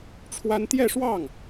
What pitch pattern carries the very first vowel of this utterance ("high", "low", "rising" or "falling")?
high